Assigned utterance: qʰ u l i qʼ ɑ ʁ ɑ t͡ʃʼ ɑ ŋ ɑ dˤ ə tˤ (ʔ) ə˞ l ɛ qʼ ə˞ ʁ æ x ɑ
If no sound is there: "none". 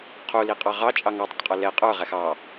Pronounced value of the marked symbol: qʼ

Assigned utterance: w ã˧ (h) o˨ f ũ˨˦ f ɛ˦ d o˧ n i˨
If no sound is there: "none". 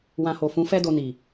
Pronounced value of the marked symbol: h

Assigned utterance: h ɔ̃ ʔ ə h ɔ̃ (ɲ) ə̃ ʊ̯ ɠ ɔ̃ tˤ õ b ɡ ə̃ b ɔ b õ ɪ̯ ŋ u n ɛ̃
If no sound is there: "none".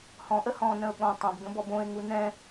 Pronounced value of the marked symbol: n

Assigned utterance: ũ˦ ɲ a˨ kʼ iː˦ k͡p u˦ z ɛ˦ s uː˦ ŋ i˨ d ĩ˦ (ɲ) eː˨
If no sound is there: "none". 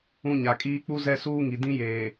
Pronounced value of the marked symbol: j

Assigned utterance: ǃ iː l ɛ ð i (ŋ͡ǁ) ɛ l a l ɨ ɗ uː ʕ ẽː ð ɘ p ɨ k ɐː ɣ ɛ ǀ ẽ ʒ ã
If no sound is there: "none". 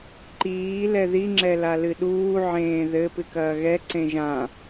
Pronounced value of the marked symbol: ŋ͡ǁ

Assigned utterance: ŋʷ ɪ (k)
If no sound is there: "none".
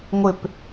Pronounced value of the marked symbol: p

